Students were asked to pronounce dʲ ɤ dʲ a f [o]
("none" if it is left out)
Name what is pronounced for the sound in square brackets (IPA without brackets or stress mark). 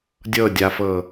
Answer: ɤ